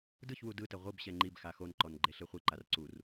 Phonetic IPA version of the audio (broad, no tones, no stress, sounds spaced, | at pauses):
d ɯ ç w u d ɯ t ɛ ʁʷ ɯ b ɕ ɛ ŋ͡ǃ i b x a x o n ǃ ɔ n ɡ͡ǃ e ɬ e χʷ i ǃ a r ǀ u r